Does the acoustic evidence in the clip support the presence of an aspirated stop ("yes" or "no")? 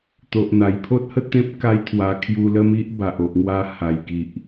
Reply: yes